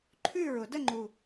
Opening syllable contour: falling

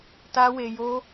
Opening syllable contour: high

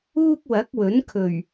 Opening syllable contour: high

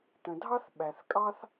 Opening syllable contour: low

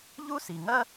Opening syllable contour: high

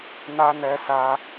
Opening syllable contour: high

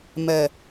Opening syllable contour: low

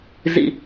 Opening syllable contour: low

